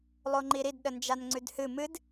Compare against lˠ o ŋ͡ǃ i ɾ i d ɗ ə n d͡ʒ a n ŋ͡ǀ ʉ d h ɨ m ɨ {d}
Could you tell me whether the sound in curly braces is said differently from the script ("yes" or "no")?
no